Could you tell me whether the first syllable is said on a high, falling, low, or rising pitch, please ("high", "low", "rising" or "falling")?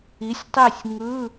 rising